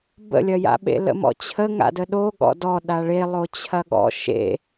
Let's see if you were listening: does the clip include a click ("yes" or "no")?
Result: no